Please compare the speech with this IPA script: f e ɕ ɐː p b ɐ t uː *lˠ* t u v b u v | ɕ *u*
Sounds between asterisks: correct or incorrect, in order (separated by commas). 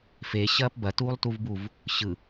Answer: correct, incorrect